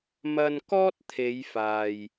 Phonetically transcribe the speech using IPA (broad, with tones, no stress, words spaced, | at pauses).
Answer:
mɐ˧n kɔː˥t̚t̪ʰe˨˧j faː˧j